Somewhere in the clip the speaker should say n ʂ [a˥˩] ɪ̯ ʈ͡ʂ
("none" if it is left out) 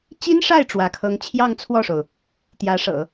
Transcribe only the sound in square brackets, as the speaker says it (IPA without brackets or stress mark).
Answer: a˥˩